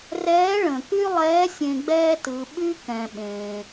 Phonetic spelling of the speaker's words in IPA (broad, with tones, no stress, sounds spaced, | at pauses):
r ɛː˧˥ ɭ ə̃˩ k y˥ lˠ ɛː˧˥ sʲ ẽ˧ ɡ͡b ɛː˥ t ɯ˩˧ ɓ y˥ k ɛ̃˩ ɓ ẽː˩